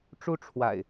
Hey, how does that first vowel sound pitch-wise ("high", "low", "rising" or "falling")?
high